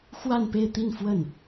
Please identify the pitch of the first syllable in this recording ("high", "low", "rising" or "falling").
falling